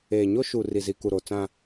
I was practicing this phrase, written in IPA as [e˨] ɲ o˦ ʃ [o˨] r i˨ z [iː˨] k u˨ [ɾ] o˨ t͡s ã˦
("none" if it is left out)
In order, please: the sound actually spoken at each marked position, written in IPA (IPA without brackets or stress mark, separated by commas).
eː˨, u˨, i˨, ɾ